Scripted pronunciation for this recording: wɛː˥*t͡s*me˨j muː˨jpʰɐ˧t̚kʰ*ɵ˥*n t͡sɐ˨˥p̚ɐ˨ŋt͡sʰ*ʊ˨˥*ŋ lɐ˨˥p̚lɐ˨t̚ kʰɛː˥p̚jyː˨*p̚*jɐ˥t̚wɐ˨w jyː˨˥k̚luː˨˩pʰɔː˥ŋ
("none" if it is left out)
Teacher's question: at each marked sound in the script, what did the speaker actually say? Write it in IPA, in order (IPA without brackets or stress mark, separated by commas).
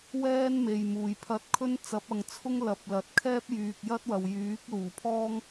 n, ɵ˥, ʊ˥, k̚